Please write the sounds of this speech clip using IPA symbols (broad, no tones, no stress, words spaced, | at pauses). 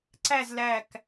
ǀæz læk